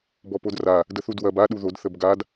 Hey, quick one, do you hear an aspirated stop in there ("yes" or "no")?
no